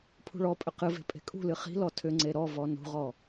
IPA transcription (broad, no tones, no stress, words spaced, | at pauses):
pʰṳɭɔpʼʏ qɨve̤ pʼe̤kʼṳlɨ χi̤lɔ tʰʏŋ͡ǀe ɾɔvɔ nṳʁɔ